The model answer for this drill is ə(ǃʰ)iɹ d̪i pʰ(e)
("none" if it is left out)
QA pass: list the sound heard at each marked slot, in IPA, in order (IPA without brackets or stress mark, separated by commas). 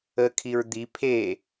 kʰ, e